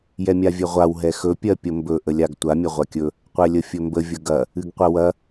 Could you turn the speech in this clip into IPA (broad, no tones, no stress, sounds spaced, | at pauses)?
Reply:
j ɛ mʲ a vʲ ɛ ʁʷ a w ɦ ɛ x ɵ pʲ ɜ pʲ ə m b ɵ ʔ ə lʲ a ɡ tʷ a mʲ ɐ ʁʷ a kʲ ɵ | qʷ ɛ lʲ ə fʲ ɵ m b ə vʲ ə ɡ ɐ | ɨ ɡ qʷ ɐ w ɐ